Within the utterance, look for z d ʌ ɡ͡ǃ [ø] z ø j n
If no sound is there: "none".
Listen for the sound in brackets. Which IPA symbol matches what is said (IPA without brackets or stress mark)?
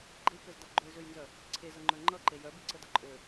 ø